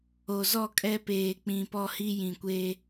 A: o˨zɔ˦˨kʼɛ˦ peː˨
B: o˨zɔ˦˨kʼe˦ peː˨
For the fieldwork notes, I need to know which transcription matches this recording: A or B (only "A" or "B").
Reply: A